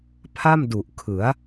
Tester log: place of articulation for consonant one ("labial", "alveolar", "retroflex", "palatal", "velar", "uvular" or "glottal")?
labial